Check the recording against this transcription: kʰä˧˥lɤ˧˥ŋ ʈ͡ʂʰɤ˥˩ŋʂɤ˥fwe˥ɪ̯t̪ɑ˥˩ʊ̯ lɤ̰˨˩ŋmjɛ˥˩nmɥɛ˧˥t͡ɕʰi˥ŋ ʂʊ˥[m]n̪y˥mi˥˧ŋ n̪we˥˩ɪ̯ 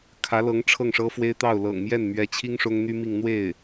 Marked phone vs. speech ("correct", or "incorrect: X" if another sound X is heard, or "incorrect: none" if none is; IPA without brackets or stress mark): incorrect: ŋ